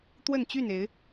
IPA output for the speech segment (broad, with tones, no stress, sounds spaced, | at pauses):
t̪ w ə˥˨ n t͡ɕ y˥˨ n e˨˦ ɪ̯